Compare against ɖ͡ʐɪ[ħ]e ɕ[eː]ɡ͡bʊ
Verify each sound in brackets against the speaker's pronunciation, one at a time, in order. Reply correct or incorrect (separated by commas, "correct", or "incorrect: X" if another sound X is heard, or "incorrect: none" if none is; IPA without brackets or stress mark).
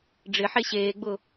correct, correct